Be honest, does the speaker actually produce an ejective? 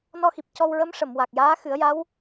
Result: no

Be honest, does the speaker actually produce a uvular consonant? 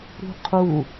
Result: yes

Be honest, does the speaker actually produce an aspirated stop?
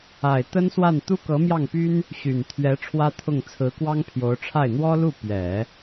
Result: yes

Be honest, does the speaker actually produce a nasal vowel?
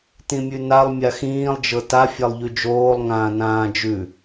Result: yes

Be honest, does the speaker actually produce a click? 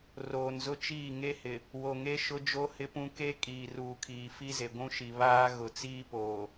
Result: no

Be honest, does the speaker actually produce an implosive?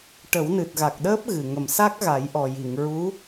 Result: yes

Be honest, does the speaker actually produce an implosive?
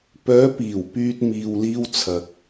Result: no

